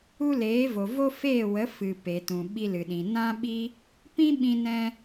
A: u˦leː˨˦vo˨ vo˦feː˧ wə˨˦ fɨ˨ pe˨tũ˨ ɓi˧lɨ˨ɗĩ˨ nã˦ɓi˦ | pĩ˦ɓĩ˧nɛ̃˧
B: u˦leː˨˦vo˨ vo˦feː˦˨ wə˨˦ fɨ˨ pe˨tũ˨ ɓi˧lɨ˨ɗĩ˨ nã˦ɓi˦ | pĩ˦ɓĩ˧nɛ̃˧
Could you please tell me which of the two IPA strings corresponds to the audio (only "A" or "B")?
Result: B